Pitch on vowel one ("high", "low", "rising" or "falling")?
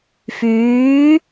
rising